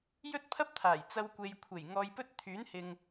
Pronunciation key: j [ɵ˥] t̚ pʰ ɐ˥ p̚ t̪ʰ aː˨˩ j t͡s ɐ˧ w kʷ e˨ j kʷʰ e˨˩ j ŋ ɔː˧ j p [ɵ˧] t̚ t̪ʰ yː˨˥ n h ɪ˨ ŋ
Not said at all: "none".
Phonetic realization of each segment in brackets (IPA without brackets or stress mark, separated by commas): ɵ˥, ɵ˥